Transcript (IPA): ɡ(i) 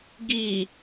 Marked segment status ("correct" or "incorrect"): correct